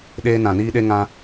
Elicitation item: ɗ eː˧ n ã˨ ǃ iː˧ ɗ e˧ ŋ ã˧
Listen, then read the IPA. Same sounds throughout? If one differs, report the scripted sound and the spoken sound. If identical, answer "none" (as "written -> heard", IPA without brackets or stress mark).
ǃ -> n